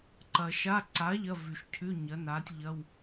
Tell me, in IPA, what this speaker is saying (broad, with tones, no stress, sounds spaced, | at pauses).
ǃ ɐ˨ ʃ a˧˥˧ ǀ a˨˥ ʎ ɐ˧˥˧ v ʉ˨ ʃ cʰ ʉ˧˥˧ ɲ ɐ˨˥ n a˨˥ tʲ ʎ ɐ˧˥˧ w